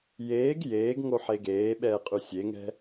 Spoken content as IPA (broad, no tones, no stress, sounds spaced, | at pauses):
j eː ɡ j eː ɡ ŋ o ħ e ɡ eː ɓ ɛː qʼ ʉ sʲ e ŋ ɛ̤